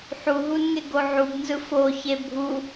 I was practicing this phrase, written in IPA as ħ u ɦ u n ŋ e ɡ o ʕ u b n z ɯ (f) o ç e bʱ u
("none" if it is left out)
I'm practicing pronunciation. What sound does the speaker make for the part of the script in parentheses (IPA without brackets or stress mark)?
f